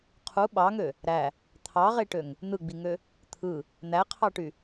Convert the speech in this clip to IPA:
qʰ u ɓ ɑ ŋ ø | ɾ æ | t̪ʰ ɑ ʁ e ʈ ø ŋ | n̪ ɯ ɡ͡b i ŋ ø | t̪ʰ ɯ | n̪ æ qʰ ɑ ʈ y

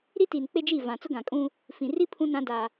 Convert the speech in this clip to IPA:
ɾ i˦ t iː˨ n k͡p e˦ d͡ʒ i˦˨ v ã˨ t͡s ʊ˦ ɡ ã˨ kʼ ũ˦ | f ĩ˨ r i˦ pʰ ũ˦ n ã˦ d a˦

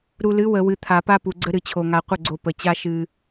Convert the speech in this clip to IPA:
ɾ u˨ l ɨ˨˦ w ə˨ w ɨ˨ t̪ʰ a˨ p a˦ p u˨ ɡ͡ǀ ə˦ ɾ ɨ˨ t͡ɕʰ o˨ ŋ a˨ qʷ ə˦˨ ɡ͡ǀ o˨ p ə˨ t͡ɕ a˦ ʃ ɨ˦

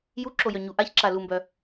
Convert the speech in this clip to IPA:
j u ǁ o j œ ɲ u ʔ a ç ǁ a l u m b œ

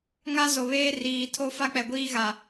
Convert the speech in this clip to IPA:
ŋ a˦ z o˨ β eː˦ r iː˨ tʰ o˦ f a˦ k͡p ɛ˨ ɡʷ iː˦ ɣ a˨

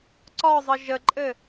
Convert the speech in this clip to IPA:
ǀ ɒ zˤ ɘ ʒ ə ǃʼ ɘ

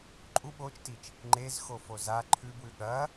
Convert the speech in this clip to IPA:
ǃʼ u ɓ o t͡ʃ t i t͡ʃ | ŋ͡ǃ e z x o f o z a ǃʰ ʉ b w ʉ ɠ ɐ

